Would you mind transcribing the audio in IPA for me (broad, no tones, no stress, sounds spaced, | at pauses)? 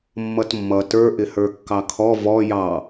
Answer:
mː ʌ t mː ʌ t ə˞ ʔ ɪ h ə˞ kː ɑ kʰ ɔ v ɔ j ɑ